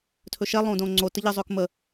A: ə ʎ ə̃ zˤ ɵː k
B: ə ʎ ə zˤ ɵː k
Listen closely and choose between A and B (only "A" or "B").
B